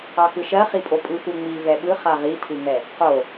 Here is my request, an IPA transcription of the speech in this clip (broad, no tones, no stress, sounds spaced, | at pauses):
ɑ x ɯ ʃ ɜ χ i pʼ o pʼ ɯ x u ŋ͡m i v ɛ ɓ ɯ χ a ʁ i tʰ ɯ ŋ ɛ | q o